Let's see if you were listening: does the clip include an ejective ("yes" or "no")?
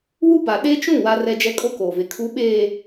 yes